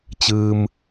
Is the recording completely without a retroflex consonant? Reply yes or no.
yes